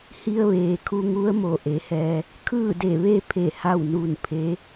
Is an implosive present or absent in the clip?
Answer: absent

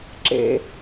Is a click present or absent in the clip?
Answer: present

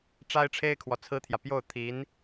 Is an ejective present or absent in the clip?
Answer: absent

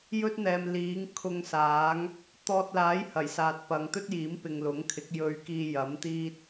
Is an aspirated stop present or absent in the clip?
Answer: present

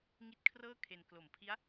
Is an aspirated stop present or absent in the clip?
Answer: present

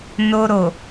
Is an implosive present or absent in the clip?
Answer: absent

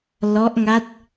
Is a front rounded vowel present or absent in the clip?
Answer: absent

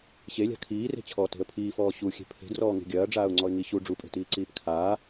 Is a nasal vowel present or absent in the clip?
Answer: absent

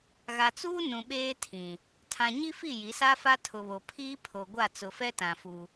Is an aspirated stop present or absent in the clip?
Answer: present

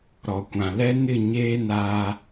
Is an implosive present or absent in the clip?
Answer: absent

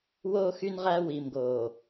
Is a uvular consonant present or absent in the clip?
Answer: present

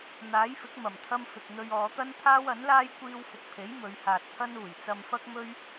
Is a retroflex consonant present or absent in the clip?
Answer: absent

